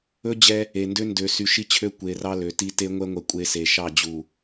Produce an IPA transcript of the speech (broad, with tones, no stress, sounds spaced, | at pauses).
ɵ˦ d͡ʑ ɛ˦ | e˨ n d ø˦ n d ø˨ s y˨ ʃ i˦ t͡ɕʰ ø˦ kʷ e˨ r ɑ˦ l ø˨ t i˦ t e˦ ŋʷ ɛ˦ ŋʷ ɛ˨ kʷʼ e˦ s e˨ ʃ ɑ˦˨ d͡ʑ u˨